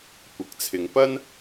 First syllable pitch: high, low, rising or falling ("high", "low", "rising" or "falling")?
rising